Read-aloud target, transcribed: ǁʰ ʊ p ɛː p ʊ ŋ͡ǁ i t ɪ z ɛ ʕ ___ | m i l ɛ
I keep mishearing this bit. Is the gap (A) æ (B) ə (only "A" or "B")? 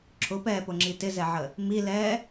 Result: B